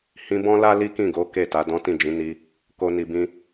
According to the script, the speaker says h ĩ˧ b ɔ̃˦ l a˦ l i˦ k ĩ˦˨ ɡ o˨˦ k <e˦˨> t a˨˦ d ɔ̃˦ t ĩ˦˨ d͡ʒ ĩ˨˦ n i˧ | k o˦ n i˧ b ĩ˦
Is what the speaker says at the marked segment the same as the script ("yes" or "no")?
yes